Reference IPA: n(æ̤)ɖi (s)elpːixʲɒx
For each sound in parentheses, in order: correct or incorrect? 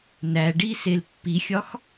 incorrect: æ, correct

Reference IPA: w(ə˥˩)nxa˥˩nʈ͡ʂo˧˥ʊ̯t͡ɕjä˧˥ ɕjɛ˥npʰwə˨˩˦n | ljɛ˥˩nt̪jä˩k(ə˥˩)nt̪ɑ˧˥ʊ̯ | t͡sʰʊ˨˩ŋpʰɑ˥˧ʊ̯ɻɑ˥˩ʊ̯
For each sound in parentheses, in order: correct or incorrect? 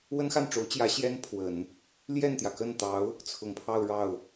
incorrect: ə˥, correct

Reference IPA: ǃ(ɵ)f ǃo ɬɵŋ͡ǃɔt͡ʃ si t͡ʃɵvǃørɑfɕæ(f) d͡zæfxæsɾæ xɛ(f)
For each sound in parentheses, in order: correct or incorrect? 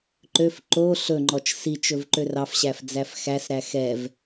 incorrect: ø, correct, incorrect: v

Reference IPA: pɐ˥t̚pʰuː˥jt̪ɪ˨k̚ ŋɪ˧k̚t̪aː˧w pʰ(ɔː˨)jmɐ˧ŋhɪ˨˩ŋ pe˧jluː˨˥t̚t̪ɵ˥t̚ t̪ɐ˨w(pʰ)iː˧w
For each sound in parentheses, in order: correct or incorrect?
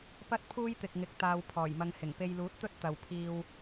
incorrect: ɔː˨˩, correct

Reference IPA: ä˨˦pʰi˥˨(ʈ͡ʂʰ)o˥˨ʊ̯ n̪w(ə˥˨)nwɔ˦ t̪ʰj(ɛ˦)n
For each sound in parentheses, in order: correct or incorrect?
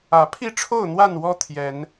correct, incorrect: a˥˨, incorrect: ɛ˨˦

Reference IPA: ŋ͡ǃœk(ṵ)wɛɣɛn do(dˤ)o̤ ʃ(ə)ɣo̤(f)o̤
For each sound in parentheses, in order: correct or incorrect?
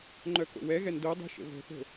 incorrect: o̰, correct, incorrect: ə̰, incorrect: θ

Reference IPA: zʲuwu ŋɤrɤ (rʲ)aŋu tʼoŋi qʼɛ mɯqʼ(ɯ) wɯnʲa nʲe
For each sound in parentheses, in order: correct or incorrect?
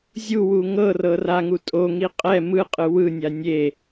incorrect: r, correct

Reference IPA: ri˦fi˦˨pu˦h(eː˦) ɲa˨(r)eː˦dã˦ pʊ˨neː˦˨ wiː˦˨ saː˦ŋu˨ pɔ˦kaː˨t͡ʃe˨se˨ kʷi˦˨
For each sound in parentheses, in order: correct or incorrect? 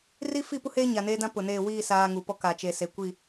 correct, incorrect: n

